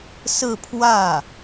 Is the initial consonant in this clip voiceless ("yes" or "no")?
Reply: yes